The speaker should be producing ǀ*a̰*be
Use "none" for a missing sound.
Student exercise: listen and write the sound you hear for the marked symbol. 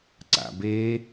a̰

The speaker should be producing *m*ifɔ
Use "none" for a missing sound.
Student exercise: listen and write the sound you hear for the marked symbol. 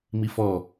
m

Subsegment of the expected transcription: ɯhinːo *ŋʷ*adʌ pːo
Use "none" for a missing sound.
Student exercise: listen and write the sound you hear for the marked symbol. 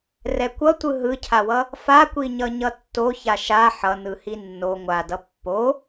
ŋʷ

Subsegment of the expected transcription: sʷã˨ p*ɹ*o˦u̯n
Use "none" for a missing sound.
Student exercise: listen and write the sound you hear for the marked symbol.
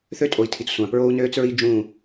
ɹ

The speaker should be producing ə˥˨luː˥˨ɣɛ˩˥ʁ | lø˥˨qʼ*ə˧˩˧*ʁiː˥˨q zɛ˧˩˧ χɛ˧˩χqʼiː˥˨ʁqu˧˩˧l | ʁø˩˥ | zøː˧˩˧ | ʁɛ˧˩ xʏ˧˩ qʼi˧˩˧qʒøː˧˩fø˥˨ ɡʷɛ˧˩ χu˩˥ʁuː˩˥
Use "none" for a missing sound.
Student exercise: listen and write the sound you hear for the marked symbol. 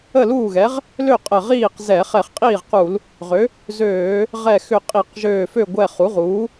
ə˧˩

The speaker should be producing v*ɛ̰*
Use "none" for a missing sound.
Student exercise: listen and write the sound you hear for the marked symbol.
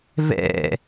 ɛ̰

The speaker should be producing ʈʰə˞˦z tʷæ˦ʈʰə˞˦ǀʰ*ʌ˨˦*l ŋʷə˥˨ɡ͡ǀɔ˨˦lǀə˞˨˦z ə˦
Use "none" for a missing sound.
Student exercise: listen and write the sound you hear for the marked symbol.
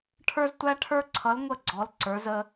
ʌ˨˦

